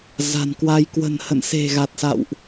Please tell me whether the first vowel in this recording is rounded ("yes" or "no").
no